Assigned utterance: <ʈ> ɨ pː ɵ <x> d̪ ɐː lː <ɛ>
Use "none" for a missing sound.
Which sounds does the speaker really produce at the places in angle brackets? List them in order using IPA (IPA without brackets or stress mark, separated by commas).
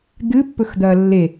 d̪, x, e